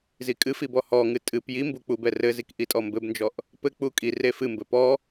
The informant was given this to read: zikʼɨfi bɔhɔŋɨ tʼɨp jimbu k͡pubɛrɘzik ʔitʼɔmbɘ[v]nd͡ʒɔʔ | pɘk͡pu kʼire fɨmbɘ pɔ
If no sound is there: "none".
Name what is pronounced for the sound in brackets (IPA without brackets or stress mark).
b